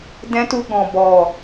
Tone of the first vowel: high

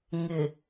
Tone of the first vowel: low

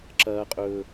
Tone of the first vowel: low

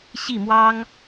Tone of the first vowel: falling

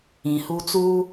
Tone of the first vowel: low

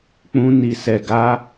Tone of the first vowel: high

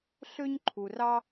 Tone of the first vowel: high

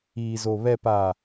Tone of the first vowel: low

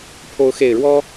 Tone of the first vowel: rising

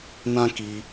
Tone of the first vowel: high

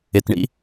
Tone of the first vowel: low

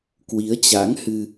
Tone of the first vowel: rising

